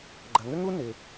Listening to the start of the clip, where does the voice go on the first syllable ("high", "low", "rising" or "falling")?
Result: low